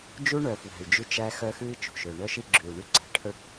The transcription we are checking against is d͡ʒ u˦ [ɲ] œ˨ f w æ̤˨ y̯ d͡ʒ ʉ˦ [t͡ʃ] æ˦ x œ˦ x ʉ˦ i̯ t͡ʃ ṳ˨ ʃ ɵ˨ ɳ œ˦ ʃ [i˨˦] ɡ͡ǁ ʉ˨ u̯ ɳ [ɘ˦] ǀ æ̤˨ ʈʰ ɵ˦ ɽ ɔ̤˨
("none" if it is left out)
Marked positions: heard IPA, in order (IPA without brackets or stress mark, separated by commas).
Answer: ɳ, t͡ʃ, i˦, ʉ˦